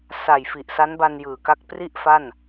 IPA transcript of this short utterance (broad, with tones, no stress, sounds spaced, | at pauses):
s a˨˩ j f i˨˩ ʔ s a˦˥ n b a˧ n j ɯː˨˩ k a˥˩ k̚ p r i˥˩ ʔ f a˥˩ n